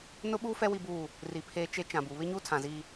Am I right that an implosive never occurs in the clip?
no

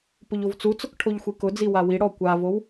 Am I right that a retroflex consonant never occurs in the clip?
no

